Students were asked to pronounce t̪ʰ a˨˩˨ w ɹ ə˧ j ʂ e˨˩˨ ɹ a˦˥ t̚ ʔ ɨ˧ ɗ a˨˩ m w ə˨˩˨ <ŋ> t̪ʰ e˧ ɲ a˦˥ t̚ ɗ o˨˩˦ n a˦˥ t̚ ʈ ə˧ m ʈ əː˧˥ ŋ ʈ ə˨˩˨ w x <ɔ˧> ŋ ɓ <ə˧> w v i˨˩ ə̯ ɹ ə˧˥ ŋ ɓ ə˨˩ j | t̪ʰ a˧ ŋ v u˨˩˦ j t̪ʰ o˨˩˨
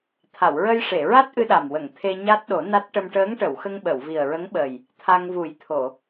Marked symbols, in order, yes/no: yes, no, no

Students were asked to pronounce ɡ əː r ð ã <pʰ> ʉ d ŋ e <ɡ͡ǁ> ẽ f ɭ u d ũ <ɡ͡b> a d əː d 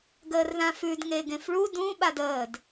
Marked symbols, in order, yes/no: no, no, no

